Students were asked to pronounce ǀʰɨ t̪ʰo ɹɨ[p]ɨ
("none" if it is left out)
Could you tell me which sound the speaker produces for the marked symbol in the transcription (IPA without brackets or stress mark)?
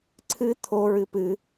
p